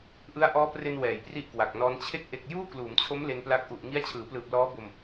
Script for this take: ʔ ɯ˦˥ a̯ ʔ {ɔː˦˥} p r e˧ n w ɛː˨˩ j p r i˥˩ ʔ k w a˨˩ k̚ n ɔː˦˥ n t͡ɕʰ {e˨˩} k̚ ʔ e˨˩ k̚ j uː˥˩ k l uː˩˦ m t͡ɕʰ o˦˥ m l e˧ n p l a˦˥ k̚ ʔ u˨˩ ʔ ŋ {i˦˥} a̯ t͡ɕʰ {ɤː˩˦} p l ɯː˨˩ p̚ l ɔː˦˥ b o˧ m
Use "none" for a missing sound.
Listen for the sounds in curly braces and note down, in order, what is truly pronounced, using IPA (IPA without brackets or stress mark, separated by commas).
ɔː˦˥, e˦˥, i˦˥, ɯː˩˦